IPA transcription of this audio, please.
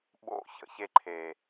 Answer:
ɓ o̰˦˨ ç ə̰˨ ç e˧ ǃʰ e˨

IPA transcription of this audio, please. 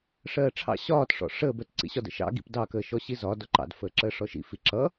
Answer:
ʂ ɜː ʈ͡ʂʰ ɑ̰ ɕ ɒː t ʂ ɔ̰ ʂ əː b ɜ t ǀ ḭ ɕ ɒ d ə̰ ʃ ɑ̰ ɡ ḭ p d ɑ k əː ʃ ɔ ɕ i z ɒ d ɔ ǃ ɑ̰ d f əː ǁ əː ʂ ɔ ʃ ḭ f i ǁ ʌ

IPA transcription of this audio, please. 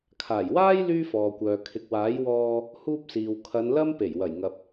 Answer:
kʰ aː˨˩ j w aː˥ j l yː˥ f ɔː˨ kʷ œː˨ kʰ ɪ˨ k̚ w aː˨˥ j w ɔː˧ | h uː˥ p̚ s iː˨ w kʰ ɐ˨˧ n l ɐ˥ m p e˨˩ j w ɐ˨˩ j ŋ ɐ˨ p̚

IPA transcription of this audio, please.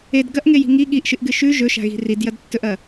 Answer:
e d ɡ ɐ ʔ ŋ e j i̤ ŋ i ɠ i ʔ ʃ ɨ ʔ ɡ ɨ ʃ ʉ ʒ ɵ ʃ a̤ ɣ i̤ r i d j ɐ d tː ɵ ʔ ɐ

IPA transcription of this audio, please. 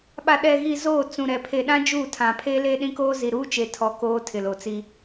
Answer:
ɓ a˨ ɗ ɛ˨ ɣ i˨ z oː˦˨ t͡s ũ˨ ɾ ɛ˨ pʰ e˨ ɗ ã˦ d͡ʒ uː˦˨ tʰ ã˨ pʰ e˦ l eː˦ ɗ ĩ˦ k oː˦ z i˨ ɾ uː˦ t͡ʃ e˨ tʰ ɔ˦ k oː˦ tʰ ɪ˨ l o˨ t͡s i˦

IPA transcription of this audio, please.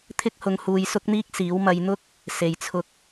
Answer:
t̪ʰ ɪ˥ k̚ h ʊ˧ ŋ h uː˧ j s ʊ˥ k̚ n̪ iː˥ k̚ s iː˨˥ w m ɐ˧ j n̪ ʊ˥ k̚ | s e˨ j t͡sʰ ʊ˧ k̚

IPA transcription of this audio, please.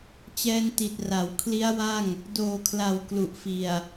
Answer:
t͡ɕ ɛː˧ n t i˨˩ t̚ r a˩˦ w kʰ l i˦˥ a̯ w a˥˩ ŋ | d oː˨˩ kʰ l a˨˩ w k l u˨˩ ʔ f i˨˩ a̯

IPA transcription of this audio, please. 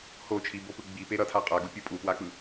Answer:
h o t͡ʃʰ i b o p ɯ ɡ͡b i p e ɾ ʌ tʰ a qʼ a ɡ u pʲ u pʼ u p w a k͡p ɯ

